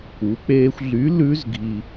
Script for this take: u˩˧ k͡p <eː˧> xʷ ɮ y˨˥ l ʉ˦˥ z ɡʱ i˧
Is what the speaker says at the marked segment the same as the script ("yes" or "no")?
yes